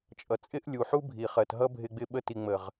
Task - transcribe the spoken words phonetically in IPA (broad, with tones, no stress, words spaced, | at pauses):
t͡ʃʼʌ˨t͡sʼɪ˦ʔlʲu˨ħu˦ bʱi˨χɜ˨tɦʌ˦ bʱɪ˦ɡ͡bɪ˦ɓə˦ ti˨ŋ͡mə˨ʁ